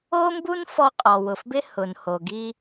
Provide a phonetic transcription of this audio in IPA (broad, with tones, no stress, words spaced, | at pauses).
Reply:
o˥mbu˥nfɔ˧ qʼɔ˩wʊ˩fbɪ˥ hʊ˩nho˩ɡi˧